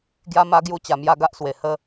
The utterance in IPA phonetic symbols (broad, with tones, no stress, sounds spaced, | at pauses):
ɡ j a˦ m a˦ ɡ j u˥˧ t͡ɕ a˧ m j a˦ ɡ a˦ ʔ s w e˨˩ h ə˧